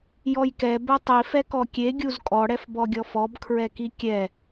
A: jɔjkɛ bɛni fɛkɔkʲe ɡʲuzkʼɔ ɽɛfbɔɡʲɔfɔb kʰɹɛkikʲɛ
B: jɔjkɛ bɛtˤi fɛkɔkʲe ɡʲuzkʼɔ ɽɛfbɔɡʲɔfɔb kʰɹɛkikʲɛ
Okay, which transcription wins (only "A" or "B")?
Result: B